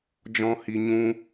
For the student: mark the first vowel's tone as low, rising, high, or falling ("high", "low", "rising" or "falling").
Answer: high